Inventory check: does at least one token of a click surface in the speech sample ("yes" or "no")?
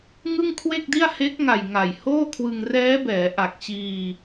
no